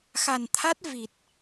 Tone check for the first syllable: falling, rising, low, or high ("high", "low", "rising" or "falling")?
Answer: low